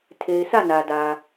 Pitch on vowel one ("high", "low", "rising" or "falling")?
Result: low